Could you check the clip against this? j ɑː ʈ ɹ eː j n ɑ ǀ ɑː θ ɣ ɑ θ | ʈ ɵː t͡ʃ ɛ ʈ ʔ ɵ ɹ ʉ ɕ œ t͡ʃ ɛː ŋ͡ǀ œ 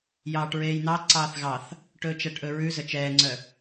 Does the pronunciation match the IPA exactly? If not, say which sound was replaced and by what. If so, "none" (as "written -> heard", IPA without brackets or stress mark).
ɕ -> z